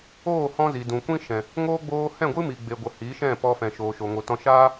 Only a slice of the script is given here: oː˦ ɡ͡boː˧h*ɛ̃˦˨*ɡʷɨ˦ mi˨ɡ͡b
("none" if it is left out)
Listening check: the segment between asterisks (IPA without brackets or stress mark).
ɛ̃˦˨